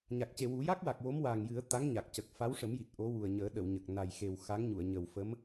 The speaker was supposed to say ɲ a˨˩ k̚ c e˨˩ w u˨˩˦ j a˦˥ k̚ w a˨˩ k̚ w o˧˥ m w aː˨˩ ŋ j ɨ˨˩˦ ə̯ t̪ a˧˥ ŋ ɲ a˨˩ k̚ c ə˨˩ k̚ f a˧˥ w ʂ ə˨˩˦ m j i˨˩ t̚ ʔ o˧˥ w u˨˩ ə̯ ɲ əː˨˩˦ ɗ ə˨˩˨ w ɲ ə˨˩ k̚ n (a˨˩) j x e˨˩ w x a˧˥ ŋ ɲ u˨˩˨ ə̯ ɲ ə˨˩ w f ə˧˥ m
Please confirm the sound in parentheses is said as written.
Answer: yes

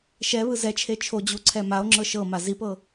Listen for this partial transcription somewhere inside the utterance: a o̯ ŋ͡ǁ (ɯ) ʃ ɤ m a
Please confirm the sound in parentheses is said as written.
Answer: no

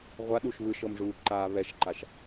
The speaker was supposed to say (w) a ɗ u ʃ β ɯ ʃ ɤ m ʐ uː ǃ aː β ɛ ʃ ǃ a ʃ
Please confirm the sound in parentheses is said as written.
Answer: no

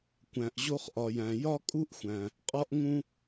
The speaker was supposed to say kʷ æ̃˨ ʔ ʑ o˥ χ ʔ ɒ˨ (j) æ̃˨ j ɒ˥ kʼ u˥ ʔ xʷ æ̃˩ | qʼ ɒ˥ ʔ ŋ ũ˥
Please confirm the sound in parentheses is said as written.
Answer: yes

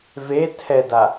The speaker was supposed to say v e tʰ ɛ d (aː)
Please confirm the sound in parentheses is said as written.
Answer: no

